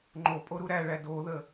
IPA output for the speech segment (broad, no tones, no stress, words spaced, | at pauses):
ŋ͡ǃopʼo ɾuɾæɭæ doðə